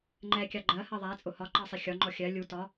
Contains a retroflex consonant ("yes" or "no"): no